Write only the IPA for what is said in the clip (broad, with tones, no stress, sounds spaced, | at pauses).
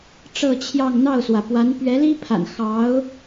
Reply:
ʈ͡ʂ ɤ˥˧ t͡ɕʰ j ɑ˥˧ ŋ n̪ ɑ˥˩ ʊ̯ s w ä˩ p w a˧˥ n p ɥ ɛ˧˥ l i˥ pʰ a̰˨˩ n x ɑ˧˥ ʊ̯